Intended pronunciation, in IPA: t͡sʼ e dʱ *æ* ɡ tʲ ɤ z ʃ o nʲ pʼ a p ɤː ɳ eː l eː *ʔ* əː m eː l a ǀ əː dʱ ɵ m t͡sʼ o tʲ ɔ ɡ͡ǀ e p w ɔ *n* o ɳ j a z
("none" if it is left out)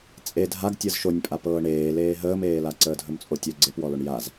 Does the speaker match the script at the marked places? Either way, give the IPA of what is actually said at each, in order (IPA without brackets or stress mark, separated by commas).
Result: a, ɦ, l